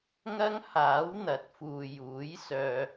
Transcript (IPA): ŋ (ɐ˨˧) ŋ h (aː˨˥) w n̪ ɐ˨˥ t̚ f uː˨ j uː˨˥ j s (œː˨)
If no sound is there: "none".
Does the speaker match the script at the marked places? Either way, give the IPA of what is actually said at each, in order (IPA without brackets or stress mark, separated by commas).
ɐ˥, aː˨˥, œː˨